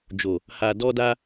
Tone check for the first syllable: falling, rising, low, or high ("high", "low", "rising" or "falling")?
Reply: low